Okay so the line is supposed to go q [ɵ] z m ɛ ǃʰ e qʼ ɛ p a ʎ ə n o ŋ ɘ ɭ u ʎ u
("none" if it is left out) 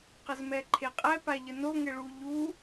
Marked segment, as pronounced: ə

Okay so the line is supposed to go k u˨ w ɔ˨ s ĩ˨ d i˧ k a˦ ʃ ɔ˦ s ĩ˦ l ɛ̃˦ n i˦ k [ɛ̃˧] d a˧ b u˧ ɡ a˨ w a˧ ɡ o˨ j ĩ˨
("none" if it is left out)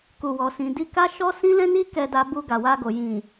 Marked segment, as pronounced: ɛ˧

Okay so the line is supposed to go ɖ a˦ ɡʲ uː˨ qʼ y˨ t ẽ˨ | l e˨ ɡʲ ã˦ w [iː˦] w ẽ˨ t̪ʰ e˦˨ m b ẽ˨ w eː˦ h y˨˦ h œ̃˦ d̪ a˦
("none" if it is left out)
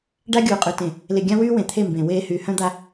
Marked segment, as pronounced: yː˦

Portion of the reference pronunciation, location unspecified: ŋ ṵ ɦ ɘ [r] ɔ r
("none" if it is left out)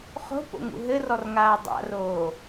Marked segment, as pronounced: r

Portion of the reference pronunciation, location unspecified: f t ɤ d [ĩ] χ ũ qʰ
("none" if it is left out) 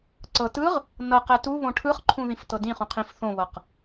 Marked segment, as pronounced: ĩ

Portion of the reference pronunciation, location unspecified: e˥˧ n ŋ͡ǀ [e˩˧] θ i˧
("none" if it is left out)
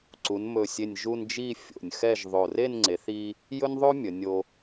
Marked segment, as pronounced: e˩˧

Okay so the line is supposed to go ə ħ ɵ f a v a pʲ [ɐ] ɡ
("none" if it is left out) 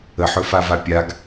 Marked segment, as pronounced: a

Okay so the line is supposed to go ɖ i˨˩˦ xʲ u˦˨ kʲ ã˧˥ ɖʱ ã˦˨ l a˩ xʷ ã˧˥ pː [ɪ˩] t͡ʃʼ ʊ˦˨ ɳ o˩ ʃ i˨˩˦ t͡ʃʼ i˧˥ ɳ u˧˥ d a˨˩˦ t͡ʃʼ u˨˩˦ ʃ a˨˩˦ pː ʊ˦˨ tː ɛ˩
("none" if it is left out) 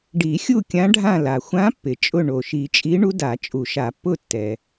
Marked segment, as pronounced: ɪ˩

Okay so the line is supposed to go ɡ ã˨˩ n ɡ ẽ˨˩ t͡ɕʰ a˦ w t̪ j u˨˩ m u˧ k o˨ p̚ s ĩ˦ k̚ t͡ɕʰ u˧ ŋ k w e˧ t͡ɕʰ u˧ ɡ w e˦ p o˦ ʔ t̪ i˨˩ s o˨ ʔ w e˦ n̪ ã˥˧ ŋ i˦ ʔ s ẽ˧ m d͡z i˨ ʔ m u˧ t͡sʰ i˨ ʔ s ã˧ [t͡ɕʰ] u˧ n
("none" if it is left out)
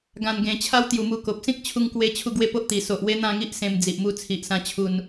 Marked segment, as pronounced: t͡ɕʰ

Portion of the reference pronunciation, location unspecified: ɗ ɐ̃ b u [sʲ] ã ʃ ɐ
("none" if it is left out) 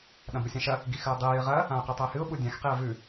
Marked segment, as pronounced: sʲ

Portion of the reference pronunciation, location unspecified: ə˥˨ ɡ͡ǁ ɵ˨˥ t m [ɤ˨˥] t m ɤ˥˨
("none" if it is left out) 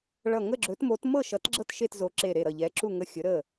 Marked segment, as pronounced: o˨˥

